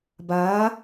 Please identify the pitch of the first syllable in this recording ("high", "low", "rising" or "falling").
rising